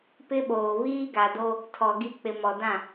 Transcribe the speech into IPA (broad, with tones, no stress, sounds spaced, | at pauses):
p ɪ˦ ɓ oː˨ β iː˦ ɡ a˨ d o˦ | tʰ ɔ˨ ɡ i˦ k͡p ɪ˨ m ɔ˨ d ã˦˨